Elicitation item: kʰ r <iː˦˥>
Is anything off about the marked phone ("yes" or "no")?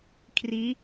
no